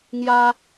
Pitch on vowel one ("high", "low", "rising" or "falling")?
high